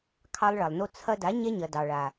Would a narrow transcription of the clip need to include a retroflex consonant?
yes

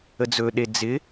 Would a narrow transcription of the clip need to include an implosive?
yes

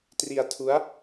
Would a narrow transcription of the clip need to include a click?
no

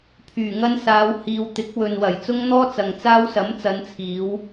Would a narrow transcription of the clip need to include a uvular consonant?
no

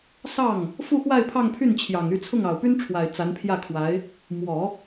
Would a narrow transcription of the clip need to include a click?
no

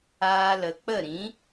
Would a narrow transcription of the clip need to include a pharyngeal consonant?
no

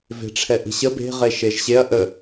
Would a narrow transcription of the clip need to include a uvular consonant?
yes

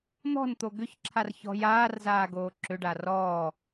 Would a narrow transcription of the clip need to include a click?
yes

